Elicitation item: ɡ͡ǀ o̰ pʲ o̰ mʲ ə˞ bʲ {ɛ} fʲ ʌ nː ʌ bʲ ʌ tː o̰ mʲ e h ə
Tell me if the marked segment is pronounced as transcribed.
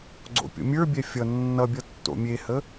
yes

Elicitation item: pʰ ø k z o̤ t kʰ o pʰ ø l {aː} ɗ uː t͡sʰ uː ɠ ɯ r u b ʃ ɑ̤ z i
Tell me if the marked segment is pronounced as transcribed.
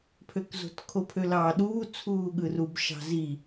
no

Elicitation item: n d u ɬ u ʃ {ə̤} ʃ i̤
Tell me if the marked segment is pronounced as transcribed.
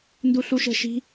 yes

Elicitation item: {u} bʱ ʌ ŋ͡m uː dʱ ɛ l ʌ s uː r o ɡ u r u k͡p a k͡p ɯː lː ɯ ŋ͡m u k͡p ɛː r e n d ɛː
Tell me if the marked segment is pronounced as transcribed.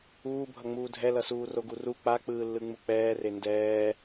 no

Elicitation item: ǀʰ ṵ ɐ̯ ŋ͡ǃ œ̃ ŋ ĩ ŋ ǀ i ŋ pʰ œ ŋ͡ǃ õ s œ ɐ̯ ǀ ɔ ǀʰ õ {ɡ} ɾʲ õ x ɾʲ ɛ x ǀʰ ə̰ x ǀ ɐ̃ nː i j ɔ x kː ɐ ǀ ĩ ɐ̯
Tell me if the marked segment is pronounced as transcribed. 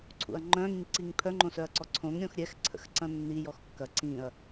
no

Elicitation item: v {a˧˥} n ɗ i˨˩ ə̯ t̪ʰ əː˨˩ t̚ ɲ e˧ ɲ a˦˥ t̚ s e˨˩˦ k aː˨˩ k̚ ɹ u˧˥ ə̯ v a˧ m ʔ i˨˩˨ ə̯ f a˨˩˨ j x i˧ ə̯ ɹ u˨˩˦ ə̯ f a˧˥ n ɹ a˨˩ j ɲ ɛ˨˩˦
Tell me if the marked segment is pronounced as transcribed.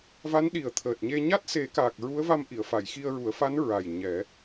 yes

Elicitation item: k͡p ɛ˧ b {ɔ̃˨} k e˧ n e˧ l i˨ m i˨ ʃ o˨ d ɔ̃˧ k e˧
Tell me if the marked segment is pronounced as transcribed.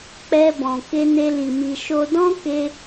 yes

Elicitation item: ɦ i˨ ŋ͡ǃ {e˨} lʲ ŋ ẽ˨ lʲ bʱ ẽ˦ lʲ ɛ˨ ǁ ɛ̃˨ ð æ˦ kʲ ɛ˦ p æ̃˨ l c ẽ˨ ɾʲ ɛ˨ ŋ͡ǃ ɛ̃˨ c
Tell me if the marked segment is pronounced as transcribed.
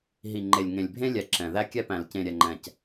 yes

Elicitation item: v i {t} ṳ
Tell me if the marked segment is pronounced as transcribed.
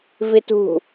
yes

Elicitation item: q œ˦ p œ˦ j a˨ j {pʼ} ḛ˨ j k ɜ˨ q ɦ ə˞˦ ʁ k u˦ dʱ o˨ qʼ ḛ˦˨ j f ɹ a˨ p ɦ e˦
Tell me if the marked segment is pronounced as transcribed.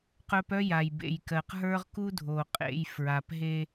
no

